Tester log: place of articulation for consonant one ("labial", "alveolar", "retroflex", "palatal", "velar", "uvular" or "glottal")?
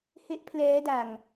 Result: glottal